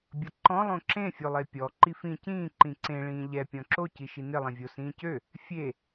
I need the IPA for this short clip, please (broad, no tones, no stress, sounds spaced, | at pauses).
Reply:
bʲ ʌ ǃ ɔ̃ lˠ õ ǁ ẽ fʲ o lˠ e pʲ ɔ ǃ i f ĩ c ĩː ǃ ĩ ǀ ẽ ɭ ĩː ʎ ɛ pʲ ɔ̃ ǁ o c i ʃ i n ɪ lˠ ẽ vʲ o s ĩː c ø | fʲ e